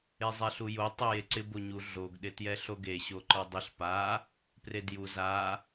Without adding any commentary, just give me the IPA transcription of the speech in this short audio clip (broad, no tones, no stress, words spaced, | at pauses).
ezˤɛɬujo tˤɛjeǀɪ boɲu ɮoɡ ɗɪtjɛɬoɡe ɕoǃɔdˤɪɬ pa | predju za